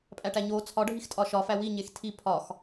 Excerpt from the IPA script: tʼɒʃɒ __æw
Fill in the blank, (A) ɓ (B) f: B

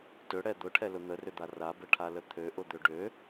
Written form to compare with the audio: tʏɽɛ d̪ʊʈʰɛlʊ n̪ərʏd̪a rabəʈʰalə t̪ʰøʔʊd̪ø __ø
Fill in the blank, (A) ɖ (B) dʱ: A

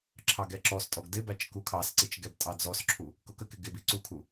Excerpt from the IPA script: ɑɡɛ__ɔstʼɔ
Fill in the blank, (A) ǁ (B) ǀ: A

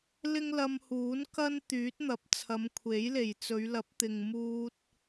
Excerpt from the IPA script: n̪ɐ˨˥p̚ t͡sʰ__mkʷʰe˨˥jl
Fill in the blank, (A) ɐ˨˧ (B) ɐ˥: A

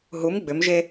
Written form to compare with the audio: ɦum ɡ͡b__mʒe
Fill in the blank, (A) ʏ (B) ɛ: A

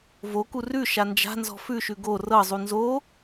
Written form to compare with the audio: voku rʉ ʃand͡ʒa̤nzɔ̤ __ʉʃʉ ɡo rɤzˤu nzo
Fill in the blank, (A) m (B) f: B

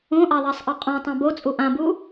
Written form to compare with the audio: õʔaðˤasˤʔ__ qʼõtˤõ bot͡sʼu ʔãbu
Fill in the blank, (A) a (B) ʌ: B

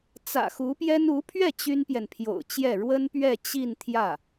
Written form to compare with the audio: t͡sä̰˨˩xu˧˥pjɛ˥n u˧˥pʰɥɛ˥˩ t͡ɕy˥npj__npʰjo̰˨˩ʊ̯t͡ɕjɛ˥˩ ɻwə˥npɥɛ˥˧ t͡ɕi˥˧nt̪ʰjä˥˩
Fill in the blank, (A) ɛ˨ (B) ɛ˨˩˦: A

